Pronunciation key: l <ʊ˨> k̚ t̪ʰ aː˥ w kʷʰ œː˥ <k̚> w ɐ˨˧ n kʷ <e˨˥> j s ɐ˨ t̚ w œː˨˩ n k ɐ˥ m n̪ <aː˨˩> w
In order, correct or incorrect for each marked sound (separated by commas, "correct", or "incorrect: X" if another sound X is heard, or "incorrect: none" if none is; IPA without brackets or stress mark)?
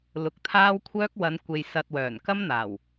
correct, correct, incorrect: e˨, correct